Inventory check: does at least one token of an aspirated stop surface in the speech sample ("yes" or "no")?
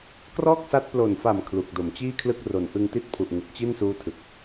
yes